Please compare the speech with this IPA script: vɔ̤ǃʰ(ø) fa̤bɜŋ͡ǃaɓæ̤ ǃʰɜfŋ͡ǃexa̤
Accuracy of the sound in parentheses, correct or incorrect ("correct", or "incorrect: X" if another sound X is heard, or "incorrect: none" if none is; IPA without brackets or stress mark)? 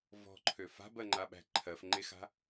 correct